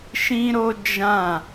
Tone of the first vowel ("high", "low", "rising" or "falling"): high